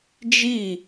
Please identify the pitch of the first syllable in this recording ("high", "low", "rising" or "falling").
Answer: falling